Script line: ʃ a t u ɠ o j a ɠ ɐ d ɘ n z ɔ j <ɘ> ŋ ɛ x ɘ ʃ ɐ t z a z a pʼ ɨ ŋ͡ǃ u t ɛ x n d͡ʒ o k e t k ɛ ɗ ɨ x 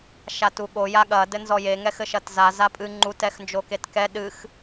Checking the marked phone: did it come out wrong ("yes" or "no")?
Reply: yes